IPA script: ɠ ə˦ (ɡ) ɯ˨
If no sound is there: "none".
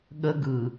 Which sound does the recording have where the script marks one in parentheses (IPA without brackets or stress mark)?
ɡ